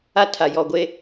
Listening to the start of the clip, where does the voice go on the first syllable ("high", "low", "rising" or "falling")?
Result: high